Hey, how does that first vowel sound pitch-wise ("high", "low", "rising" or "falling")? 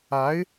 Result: rising